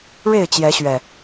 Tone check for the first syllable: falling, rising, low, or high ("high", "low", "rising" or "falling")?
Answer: falling